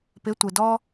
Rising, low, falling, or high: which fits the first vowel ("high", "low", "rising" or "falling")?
rising